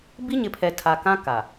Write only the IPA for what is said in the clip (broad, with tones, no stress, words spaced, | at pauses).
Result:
bi˦ɲɪ˨˦pʰɛ˨ tʰa˨kã˦ ka˨